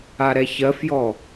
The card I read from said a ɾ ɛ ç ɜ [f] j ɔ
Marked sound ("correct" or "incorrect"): correct